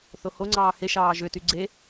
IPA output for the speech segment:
θ o h o ŋ͡ǀ ɑː h e ʃ ɑː ʒ ø t y ɡ͡ǀ e

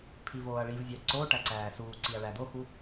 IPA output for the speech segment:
pʰ i v oː ɐ̯ ɭ i v zʲ æ ǀ o ʈ æ ǀ æː s uː ǀ i ɐ̯ ɭ æ d̪ o x u

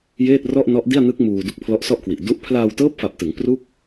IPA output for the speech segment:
j eː˥˩ t̚ r ɔ˥˩ ʔ n ɔ˦˥ ʔ d i˥˩ a̯ n ɯ˦˥ k̚ m uː˧ d u˦˥ k̚ pʰ l ɔ˦˥ ʔ s ɔ˥˩ ʔ k w i˨˩ ʔ d u˦˥ ʔ pʰ l aː˧ w t ɤː˦˥ p̚ f a˨˩ p̚ t ɯ˩˦ ŋ p r u˥˩ k̚

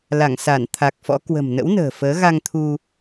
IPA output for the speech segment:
l a˧˩ ŋ s a˧˩ n t̪ʰ a˨˩ k̚ f ɔ̰˧˥ k w ə̤˨˩ m n ə̰˧˥ w n ə̤ː˨˩ f əː˨˦ ɣ a˧ ŋ t̪ʰ u˧

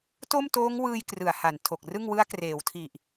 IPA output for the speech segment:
t o˥˩ m t oː˦˥ ŋ w ɯː˧ j k r ɯ˩˦ a̯ h a˩˦ n tʰ o˨˩ k̚ r ɯ˥˩ ŋ w ɯ˦˥ a̯ k r eː˩˦ w tʰ i˨˩ ʔ

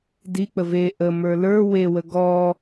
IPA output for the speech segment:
d i k͡p ə v e ʔ ə m ə˞ l ə˞ w e w ə ɡ ɔ

